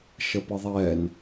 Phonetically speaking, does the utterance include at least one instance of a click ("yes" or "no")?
no